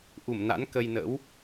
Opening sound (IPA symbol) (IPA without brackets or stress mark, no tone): ʔ